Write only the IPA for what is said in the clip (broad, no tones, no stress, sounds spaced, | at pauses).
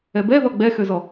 ɛ b ɛ ð ɔ ɡ͡b ɛ x ø z ɔ